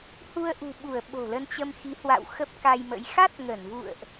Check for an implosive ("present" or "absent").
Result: present